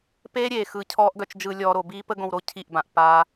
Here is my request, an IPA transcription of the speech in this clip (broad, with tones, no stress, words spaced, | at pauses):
peː˦ɾʲeː˨ xɯ˨ cʰɔː˦ʔɡœ˧t͡ʃd͡ʒɯ˧lʲɔː˧ ɾo˨biː˦pə˦ ɡõ˧wɾo˧ cʰi˦˨ʔbã˨ʔ pa˦